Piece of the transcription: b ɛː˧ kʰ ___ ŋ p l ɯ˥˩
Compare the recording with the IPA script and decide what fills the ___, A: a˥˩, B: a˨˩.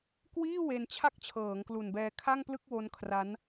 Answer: A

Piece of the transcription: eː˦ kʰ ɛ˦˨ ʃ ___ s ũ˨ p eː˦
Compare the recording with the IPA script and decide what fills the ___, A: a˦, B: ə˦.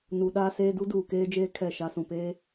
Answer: A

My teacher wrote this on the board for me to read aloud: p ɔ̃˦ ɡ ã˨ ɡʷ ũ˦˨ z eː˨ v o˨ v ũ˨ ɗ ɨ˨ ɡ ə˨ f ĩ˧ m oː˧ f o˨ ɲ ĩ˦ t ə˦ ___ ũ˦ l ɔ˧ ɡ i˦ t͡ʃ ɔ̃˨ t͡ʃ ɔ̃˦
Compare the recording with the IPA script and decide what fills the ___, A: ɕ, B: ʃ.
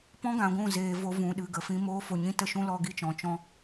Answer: B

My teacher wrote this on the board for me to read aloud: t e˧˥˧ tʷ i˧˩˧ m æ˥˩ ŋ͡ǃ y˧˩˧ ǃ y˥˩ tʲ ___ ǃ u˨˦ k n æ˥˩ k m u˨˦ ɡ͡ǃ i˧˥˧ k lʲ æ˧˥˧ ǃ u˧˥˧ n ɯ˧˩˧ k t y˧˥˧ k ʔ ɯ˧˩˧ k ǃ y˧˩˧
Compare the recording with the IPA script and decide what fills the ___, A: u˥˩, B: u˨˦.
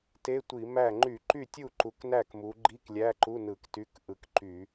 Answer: A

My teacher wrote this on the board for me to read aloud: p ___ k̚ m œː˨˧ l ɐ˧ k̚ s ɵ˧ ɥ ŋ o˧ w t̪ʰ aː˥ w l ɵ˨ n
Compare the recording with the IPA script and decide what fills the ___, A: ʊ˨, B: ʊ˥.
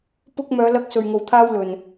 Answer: B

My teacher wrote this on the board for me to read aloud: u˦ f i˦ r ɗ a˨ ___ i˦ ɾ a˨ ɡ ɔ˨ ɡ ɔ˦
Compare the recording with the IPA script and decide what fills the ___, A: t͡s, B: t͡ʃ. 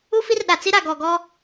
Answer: A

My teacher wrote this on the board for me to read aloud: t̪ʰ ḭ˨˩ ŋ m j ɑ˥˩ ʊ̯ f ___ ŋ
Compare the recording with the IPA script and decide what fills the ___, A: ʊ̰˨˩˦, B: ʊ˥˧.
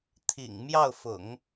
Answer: A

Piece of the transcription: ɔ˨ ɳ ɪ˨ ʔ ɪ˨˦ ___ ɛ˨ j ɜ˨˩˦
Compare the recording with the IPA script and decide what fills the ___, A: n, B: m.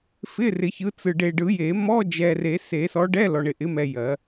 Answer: B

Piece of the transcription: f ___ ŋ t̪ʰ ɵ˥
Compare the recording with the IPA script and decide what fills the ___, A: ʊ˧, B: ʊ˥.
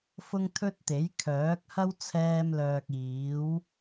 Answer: B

